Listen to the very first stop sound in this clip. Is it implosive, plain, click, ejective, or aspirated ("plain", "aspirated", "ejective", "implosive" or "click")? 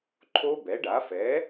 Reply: click